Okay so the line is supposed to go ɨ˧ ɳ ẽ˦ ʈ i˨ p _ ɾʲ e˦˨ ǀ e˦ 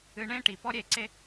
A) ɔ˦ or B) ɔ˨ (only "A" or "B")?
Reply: A